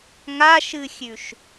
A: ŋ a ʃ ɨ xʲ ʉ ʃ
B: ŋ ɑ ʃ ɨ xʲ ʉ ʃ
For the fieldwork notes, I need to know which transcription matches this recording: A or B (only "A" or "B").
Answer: A